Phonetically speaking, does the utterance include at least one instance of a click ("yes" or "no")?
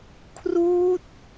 no